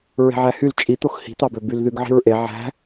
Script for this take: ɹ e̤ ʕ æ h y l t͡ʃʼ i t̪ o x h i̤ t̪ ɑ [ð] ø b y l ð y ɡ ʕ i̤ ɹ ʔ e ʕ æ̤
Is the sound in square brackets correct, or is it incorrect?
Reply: incorrect